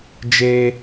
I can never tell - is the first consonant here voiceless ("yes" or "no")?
no